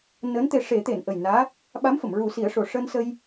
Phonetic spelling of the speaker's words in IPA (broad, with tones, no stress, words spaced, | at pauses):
nəː˧˥nt̪e˧ ʂe˨˩˦t̪e˨˩˨n ʔə˨˩jnaː˧˥ | ɓa˧˥mfə˨˩˨m ɹu˨˩˦si˨˩˦ə̯ʂo˨˩ ʂəː˧nsə˧j